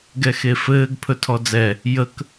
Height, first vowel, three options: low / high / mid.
mid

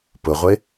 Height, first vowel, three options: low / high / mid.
high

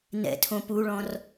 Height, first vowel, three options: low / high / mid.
mid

